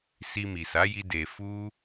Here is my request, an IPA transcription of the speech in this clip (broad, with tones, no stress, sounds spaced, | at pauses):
s i˧ m i˨ s a˨˦ j i˦ d e˧ f u˦